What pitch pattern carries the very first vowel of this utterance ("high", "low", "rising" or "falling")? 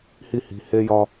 high